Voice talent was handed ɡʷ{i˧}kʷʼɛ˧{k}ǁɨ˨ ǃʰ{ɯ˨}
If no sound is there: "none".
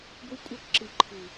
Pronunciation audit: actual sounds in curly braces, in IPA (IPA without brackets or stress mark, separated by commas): i˧, k, ɯ˨